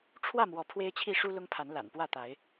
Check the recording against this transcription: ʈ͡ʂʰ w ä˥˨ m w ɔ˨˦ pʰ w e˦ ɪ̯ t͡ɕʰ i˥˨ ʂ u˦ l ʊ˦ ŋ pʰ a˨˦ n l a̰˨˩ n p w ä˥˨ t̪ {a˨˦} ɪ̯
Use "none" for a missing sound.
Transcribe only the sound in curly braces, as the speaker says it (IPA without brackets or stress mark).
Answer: a˨˦